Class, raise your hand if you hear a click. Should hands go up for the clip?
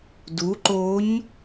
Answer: yes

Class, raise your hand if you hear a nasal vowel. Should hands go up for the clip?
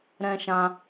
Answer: yes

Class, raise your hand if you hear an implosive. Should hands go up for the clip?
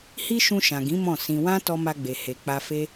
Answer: no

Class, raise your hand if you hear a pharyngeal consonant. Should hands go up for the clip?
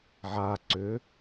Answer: yes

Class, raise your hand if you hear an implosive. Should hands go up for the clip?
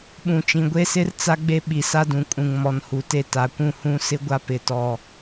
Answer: yes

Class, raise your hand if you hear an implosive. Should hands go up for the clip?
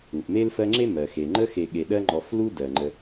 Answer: yes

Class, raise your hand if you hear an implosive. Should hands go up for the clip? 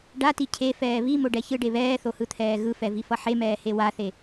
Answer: no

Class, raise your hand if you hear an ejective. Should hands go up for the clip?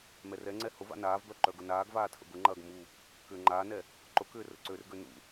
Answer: no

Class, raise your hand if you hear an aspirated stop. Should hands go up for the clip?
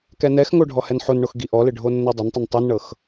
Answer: no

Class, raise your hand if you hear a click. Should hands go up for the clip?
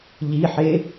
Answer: no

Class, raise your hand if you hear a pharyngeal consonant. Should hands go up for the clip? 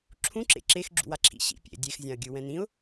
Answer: no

